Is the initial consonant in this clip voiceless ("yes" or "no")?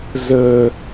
no